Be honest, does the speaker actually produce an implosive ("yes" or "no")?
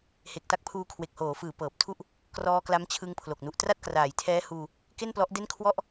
no